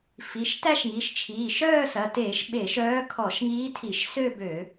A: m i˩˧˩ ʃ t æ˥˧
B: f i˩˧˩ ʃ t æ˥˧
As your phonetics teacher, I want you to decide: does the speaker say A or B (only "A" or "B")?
B